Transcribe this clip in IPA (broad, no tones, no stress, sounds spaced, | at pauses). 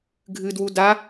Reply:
ɡʱ ɨ d w u d a